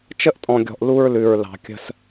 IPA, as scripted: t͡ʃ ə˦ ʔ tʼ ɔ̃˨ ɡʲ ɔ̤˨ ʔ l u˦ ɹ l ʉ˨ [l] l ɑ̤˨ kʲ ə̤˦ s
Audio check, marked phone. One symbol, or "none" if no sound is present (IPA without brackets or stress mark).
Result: ɹ